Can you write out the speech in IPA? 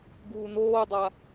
ɡ uː n oː dˤ a

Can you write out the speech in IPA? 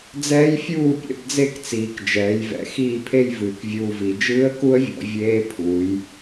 d͡z ɛː˦˥ j fʲ uː˥˩ pʲ ɛ̰˧ b d͡z e˥˩ k t͡s iː˩˧ k d͡ʒ ɛː˩˧ j v ɛ̰˩˧ x iː˥˩ pʰ e˥˧ j v ɨː˩˧ k vʲ uː˧ v i˩˧ d͡ʒ ɨː˦˥ ə̯ k u˦˥ ə̯ vʲ ɔ̰˩˧ vʲ eː˦˥ pʰ uː˩˧ j

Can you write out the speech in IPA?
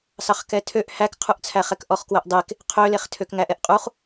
s ɑ χ k ɛ tʰ ø ʔ h æ k qʰ u ʔ t͡sʰ æ χ ɛ k ʔ ɔ χ k w œ ʔ dˤ e k | qʰ ø l e χ tʰ ø k ŋ æ ʔ ɛ ʔ qʼ u χ

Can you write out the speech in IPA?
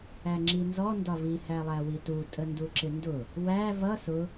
æ ŋ͡ǁ i n z ɔ n d ɒ v i h æ lˠ æ w i t u tʼ ə n d u ǁ ɪ n d ʊ | w æ v ʌ s ʊ

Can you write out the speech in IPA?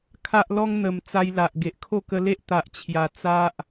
kʰ a˦ ʔ l ɔ˦ ŋ n̪ ə˨˩ m t͡s a˧ j l a˨ ʔ ɡ e˨ ʔ kʰ o˥˧ k ə˧ l e˦ ʔ t̪ a˨ ʔ t͡ɕʰ j a˨˩ t͡s a˦ ʔ

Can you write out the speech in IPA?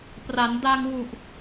p r a˩˦ n d a˧ ŋ w u˨˩ ʔ

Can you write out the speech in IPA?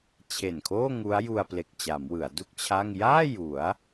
t͡ɕʰ e˨˩ n kʰ oː˥˩ ŋ u˦˥ a̯ j u˧ a̯ p l e˨˩ k̚ t͡ɕ a˩˦ m w ɯ˩˦ a̯ d u˥˩ k̚ t͡ɕʰ a˥˩ ŋ j aː˥˩ j u˩˦ a̯

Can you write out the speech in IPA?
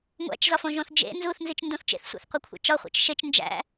ŋʷ æ̰ t͡ʃ z ɒ f õ ʒ õ θ d͡ʒ ḛ n z u θ n z i t͡ʃ n d õ θ t͡ʃ ḛ θ sʷ æ̰ θ qʷ e kʷʰ æ̰ t͡ʃ ɒ χʷ æ̰ t͡ʃ ʃ e t͡ʃ n d͡ʒ æ̰

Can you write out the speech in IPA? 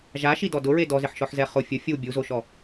ʒ a ʃ i d ɔ d ʊ ɹ e d ɔ z ɪ ħ ʃ ɔ ħ z ɛ χ ʊ fʲ ʊ fʲ u bʲ u z o ʃ ɔ

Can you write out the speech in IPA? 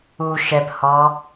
u ʃ ɛ p h ɔ

